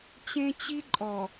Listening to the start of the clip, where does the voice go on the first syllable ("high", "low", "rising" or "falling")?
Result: high